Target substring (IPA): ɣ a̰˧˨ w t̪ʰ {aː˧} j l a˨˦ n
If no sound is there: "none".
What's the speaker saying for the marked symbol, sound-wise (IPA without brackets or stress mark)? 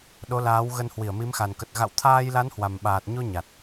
aː˧